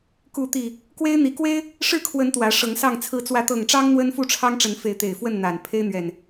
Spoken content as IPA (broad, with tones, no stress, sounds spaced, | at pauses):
k u˨˦ t̪ i˨˩ | k w e˦ ɪ̯ n̪ i˨˦ k w e˦ ɪ̯ | ʂ ɻ̩˥˨ kʰ w ə˨˦ n t̪ w ä˨˦ ʂ ɤ˨˦ ŋ s ɑ˥˨ ŋ t͡sʰ ɹ̩˨˦ t͡s w ä˨˦ t̪ ɤ˨˩ ŋ ʈ͡ʂ ɑ˦ ŋ n̪ w ə˦ n f u˥˨ ʈ͡ʂʰ ɑ˦ ŋ ʈ͡ʂ ə˨˦ n f e˨˦ ɪ̯ t̪ e˨˩ ɪ̯ f w ə˥˨ n n̪ a˨˩ n pʰ e˦ ɪ̯ n̪ ɥ ɛ˨˩ n